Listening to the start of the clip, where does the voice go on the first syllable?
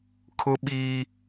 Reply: high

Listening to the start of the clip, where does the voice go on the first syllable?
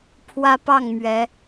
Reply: high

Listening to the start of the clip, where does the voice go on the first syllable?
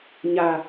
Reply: low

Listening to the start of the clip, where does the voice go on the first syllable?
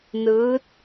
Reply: rising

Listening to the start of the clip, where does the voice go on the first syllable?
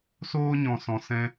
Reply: high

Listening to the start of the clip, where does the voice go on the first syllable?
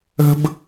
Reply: high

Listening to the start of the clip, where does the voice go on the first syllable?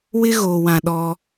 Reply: high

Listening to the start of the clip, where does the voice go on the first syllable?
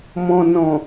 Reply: low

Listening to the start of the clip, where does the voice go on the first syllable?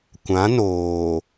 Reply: rising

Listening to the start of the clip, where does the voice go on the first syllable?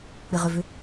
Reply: low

